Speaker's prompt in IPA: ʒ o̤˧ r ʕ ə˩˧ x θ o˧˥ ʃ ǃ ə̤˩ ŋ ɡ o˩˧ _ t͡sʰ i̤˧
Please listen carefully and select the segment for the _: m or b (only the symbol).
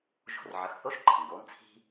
m